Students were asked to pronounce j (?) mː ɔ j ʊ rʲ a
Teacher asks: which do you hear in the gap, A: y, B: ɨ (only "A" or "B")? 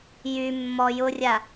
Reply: A